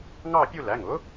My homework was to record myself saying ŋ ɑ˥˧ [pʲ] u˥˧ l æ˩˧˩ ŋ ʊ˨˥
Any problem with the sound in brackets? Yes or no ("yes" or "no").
no